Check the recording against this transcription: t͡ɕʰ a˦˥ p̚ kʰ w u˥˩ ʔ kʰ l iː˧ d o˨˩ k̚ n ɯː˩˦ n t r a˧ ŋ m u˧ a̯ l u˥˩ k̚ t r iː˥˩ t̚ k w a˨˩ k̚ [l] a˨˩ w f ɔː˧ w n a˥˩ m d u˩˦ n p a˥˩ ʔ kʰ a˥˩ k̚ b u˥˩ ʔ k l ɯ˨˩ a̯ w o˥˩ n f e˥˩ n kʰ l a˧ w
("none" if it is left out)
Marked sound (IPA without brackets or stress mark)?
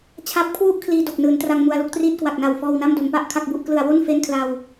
n